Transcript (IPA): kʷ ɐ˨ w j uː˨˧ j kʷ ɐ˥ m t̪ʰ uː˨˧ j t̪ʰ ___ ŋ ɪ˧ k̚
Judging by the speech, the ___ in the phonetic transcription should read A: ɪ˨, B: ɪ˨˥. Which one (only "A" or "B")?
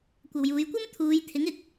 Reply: B